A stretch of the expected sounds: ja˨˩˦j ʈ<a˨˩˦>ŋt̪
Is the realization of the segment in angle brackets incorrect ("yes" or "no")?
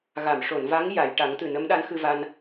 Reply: no